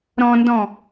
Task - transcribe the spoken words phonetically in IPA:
ɾɔ̃ndɔ̃

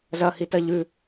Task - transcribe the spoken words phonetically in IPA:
zɐhitɐ ʎʉ

